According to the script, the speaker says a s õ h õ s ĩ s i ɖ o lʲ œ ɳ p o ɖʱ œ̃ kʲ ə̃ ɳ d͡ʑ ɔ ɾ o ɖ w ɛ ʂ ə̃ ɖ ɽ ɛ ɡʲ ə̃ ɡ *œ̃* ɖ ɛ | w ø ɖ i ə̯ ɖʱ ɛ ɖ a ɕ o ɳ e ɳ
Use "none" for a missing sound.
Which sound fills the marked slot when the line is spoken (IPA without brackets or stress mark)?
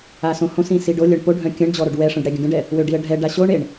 ə̃